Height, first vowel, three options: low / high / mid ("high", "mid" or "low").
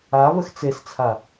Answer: low